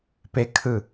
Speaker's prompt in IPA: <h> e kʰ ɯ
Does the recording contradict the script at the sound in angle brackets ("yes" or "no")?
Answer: yes